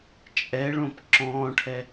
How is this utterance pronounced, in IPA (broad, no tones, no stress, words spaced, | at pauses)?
t͡ʃʼɛɭõp ǁɔ̃ːʈʰɛ